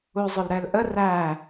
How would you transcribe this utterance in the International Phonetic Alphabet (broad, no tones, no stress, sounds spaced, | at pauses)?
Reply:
u zˤ ʊ l ɾ ɛ l ʔ ə r æ